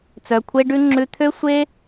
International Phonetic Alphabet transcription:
t͡s œ˨ kʷʰ e˧ ɖ ʉ˧ ŋ͡ǁ ʉ˧ t̪ʰ ø˦ sʷ e˦

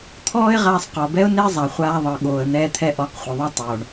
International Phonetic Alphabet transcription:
t̪ʰ ɔː˦ ɪ̯ ʁ aː˧ sˤ q ɔ˨ b ɛ˦ ʊ̯ n e˦ zˤ a˨ χʷ aː˦ ðˤ ɤ˧ ɠ oː˨ ə̯ n̪ ɛː˧ t̪ʰ ɛ˧ ʔ ɔ˨˦ q χʷ ɯ˨ ðˤ ɛ˦ tˤ oː˨ ɳ

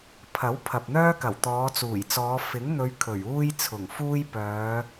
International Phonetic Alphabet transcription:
pʰ ɐ˨˥ w pʰ ɐ˨ p̚ n̪ œː˥ k ɐ˨˩ w t̪ ɔː˨˧ t͡s uː˨˩ j t͡s ɔː˨˧ f ɪ˨˥ ŋ n̪ ɵ˨˧ ɥ kʰ ɵ˨˩ ɥ uː˥ j t͡sʰ ʊ˨˩ ŋ f uː˥ j p œː˨˧

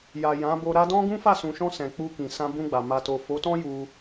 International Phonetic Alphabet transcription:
j a˨ j ã˨˦ b o˧ ɾ a˧ d ɔ̃˦ ɡ ũ˦ f a˦˨ s ũ˨ ʃ ɔ̃˧ s ɛ̃˨ k͡p u˧ k ĩ˨ s ã˧ b ũ˧ ɡ͡b a˨ m a˨ t o˨ f o˨˦ t ɔ̃˦ j u˧

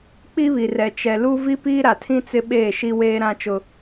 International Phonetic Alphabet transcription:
k͡p i˦ β i˨ r ɛ˨ t͡ʃ ɛ˨ l u˦ v i˦ p iː˦ ɾ a˨ tʰ ĩ˦ t͡s ɪ˦ ɓ eː˦˨ ʃ i˦ w eː˦ ɾ ã˦ t͡ʃ ʊ˦

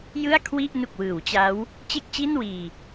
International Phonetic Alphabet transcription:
j ɯ˥˩ a̯ kʰ w i˥˩ ʔ n u˨˩ k̚ w ɯː˩˦ w t͡ɕ a˦˥ w | t͡ɕ e˥˩ k̚ t͡ɕ i˥˩ n w iː˧

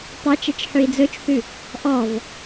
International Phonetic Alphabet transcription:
tˤ ɑ t͡ʃ ɛ t͡ʃ ħ ʉ i̯ d͡z ɵ t͡ʃ θ ʉ | ʔ ɔ v

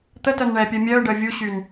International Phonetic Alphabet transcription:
t̪ ə t œ n ɳ ɛː pʲ œ mʲ œː ɖ əː vʲ u ɕ y n

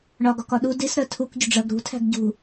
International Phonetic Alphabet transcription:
ɳ ɒ ɡ ɒ k ɒ ɗ u d i s ɾ ɜ tʰ u k ɟ ʊ ɖ͡ʐ ɜ ɡ ɾ ṳ tʰ æ̤ ɡ ɟ ṳ

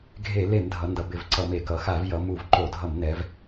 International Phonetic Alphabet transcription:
ɡʱ e˧˩˧ l e˧˩˧ m dʱ ʌ˩˧ n d ʌ˩˧ b ɪ˧˩˧ v ǀ ʌ˧˩˧ m e˧˩˧ k ʌ˩˧ x a˧˩˧ v j ʌ˩˧ m u˧˩˧ v ǃ o˧˩˧ dʱ ʌ˧˩˧ m n ɛ˩˧ v

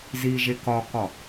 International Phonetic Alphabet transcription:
z i ʒ e k ɒ k ɒ

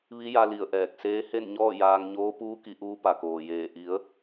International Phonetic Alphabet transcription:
ʋ i˧˥ j a˧ l i˧˩ ə̯ ʔ ɛː˧˩ k̚ s eː˧˥ h e˥˨ n ɲ ɔː˥˨ j aː˧ ŋ ɲ oː˧˥ p uː˧˥ k i˩˧ ʔ uː˧ p a˩ k oː˩ j eː˧˩ ʔ i˩˧ ə̯

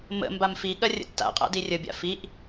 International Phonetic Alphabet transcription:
m ə̰ m b a m f i ɠ ɐ rʲ ə̰ tː a̰ qʼ a̰ d i rʲ ə bʲ a̰ f i ʔ

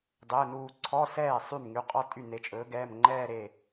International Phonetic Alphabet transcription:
dˤ e˩˧˩ ə̯ n uː˧˩ ǀʰ ɔ˧˥˧ s ɛː˥˩ sˤ y˥˩ m ŋ y˩˧˩ qʼ ɔ˥˧ tʼ y˥˩ n e˨˥ t͡ʃʼ ɵː˨˥ ɡ ɛː˩˧˩ m ŋ͡ǃ ɛː˥˧ ɾ e˧˩

